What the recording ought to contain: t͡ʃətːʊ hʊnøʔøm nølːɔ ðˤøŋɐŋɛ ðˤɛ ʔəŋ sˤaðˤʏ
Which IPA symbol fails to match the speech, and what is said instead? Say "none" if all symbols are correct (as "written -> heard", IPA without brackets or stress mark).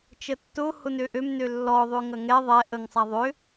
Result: none